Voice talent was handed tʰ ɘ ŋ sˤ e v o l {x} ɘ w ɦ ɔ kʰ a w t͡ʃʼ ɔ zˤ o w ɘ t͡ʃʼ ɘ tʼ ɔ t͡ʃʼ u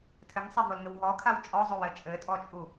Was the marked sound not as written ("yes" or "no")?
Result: yes